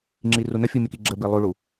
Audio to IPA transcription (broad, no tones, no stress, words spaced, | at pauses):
ŋ͡ǁirunəfʲu mʲəkiɡ͡ǁəbi lˠuɭu